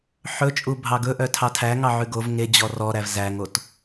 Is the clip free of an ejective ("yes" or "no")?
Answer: no